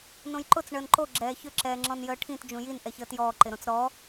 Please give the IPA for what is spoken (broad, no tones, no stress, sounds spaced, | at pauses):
n õ j ǃ ʊ t͡s ɳ əː n ǃ o ɡ͡ǁ ɛː ç ʏ ǁ ɛː ŋ͡ǁ ɔ̃ n j əː ʈʰ ĩ t d͡ʒ ũ j i n ʔ ɛ ç əː t j ɔː ǃ ɪ ɾ õ t͡s ɾ ɔ